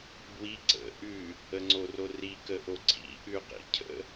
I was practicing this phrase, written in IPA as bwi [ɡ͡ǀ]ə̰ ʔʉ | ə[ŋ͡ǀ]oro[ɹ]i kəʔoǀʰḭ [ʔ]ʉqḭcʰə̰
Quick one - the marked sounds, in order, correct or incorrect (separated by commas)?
incorrect, correct, incorrect, correct